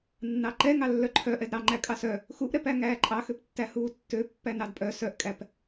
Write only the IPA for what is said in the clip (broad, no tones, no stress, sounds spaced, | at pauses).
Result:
nː ɑ ǃ ɛ ŋ ɑ lː œ ǃʰ œ ʔ ɛ d ɾ ɑ ŋ͡ǃ æ kʼ ɑ s œ | x u ʔ ɾ ɛ p æ ŋ æː ǃʼ ɑ x ø p tː æ h uː tː ø pː æ n ɑ d pʼ œ s œ ʔ kʼ æ p